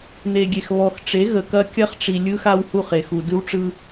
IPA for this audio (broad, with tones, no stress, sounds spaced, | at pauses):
n̪ e˨ ɡʲ e˨ x β ɔ˨ x ʈ͡ʂ e˨˦ ɣ ə˨ k ɐ˦ kʲ ɐ˦ χ ʈ͡ʂ i˨ lʲ ɯ˦ x a˦ w h u˦˨ χ e˨ x u˨ d ɯ˦ w ʈ͡ʂ ɯ˦